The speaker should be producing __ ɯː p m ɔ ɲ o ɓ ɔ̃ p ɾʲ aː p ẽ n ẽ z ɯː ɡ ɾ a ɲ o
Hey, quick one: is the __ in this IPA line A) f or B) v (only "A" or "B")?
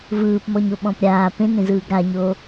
B